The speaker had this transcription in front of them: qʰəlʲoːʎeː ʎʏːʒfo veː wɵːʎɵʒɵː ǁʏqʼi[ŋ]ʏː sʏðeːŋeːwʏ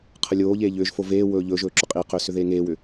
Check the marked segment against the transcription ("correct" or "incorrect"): incorrect